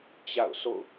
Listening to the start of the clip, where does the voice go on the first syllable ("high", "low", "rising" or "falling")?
falling